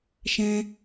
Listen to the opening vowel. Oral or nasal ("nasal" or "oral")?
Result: nasal